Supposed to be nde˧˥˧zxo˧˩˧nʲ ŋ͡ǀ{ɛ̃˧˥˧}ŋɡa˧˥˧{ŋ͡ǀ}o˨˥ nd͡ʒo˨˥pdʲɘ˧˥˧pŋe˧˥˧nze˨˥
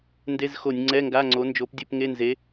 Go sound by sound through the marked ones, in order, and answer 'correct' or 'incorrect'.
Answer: incorrect: ɛ˧˥˧, correct

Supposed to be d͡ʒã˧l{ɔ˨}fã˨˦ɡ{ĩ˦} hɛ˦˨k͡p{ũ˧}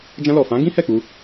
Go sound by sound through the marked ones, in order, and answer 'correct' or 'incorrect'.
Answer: correct, correct, incorrect: u˧

